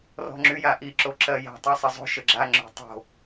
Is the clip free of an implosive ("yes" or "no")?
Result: yes